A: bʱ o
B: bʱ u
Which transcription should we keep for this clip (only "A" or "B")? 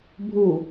B